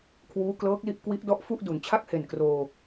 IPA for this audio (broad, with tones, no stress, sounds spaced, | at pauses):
kʰ w uː˦˥ k l ɤː˦˥ k̚ l i˥˩ ʔ k w i˦˥ ʔ d ɔ˦˥ ʔ f u˥˩ ʔ d u˩˦ n t͡ɕʰ a˥˩ k̚ h e˨˩ n k r oː˧